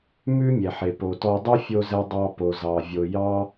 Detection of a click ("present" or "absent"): absent